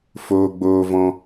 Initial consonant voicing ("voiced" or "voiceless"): voiceless